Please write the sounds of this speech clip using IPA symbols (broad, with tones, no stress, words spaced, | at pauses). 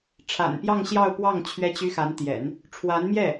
ʈ͡ʂʰa̰˨˩npjɑ˥˧ŋ ɕjɑ˥˧ʊ̯pwɑ˥˩ŋ t͡ɕʰɥɛ˥t͡ɕy˥ xa˧˥nt̪jɛ̰˨˩˦n | ʈ͡ʂʰwa˧˥nmjɛ˥˩